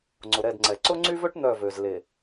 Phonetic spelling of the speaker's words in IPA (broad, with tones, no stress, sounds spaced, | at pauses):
ŋ͡ǀ ʊ˨ ɾ ɛ˦˨ d ŋ͡ǀ ɛ˨ ǀ ʊ˦ ŋ͡ǀ y˦ v ø˦ ʈ n̪ œ˦˨ v ø˨ z l e˨